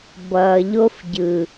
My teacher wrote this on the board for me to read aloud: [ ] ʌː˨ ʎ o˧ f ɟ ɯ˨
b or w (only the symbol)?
b